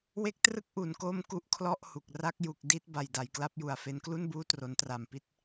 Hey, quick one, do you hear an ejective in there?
no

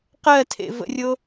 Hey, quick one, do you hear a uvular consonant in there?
yes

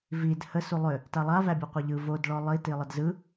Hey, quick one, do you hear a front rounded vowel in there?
yes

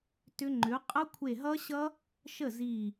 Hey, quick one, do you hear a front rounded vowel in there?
yes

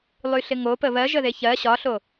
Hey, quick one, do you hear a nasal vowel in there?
no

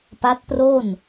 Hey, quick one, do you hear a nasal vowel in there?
no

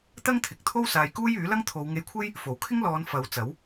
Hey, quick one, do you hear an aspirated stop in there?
yes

